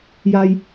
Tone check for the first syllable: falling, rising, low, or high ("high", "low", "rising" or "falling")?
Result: low